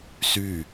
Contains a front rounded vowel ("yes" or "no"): yes